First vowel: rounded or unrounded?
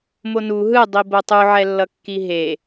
rounded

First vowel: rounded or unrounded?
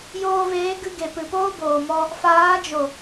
rounded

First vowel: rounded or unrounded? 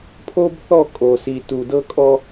rounded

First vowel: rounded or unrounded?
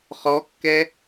rounded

